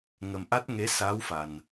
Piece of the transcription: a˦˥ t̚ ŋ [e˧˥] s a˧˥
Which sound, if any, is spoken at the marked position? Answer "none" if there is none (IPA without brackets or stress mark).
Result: e˧˥